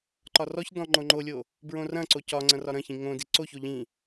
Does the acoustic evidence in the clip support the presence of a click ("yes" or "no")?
yes